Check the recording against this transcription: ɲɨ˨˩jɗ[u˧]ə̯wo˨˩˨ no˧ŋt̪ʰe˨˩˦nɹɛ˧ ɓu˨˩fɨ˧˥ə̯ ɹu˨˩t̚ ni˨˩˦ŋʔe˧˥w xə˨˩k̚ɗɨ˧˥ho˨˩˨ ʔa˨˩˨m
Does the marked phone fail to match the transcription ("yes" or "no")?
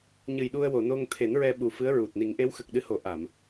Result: no